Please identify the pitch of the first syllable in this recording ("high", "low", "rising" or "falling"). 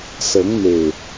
rising